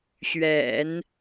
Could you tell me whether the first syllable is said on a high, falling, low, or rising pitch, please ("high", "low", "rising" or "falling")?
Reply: low